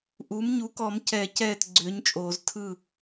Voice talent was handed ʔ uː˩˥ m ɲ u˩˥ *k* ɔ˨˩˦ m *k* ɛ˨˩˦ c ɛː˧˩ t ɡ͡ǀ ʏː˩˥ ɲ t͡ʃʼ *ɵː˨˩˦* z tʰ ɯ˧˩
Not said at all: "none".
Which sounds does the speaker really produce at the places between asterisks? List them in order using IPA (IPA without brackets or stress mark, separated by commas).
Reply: k, c, oː˨˩˦